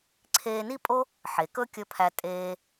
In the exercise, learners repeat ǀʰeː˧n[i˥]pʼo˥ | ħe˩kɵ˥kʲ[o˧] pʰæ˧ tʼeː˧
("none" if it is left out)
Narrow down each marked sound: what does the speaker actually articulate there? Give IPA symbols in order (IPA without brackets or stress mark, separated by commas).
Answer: i˥, ɵ˧